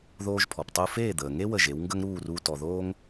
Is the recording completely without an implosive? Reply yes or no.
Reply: yes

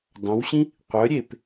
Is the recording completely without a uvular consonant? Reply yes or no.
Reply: no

